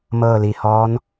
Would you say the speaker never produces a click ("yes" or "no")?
yes